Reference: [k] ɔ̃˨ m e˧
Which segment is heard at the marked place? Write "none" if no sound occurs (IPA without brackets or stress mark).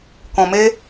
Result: k